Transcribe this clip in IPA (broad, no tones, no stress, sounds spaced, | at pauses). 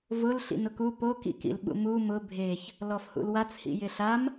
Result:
v ʊ l ɬ ḭ n ʊ k u p o k ḭ k ḭ l ɓ ṵ m u m ʊ bʱ e ç | l ɔ f h ṵ l w a t͡s h ḭ j ɪ ɬ a m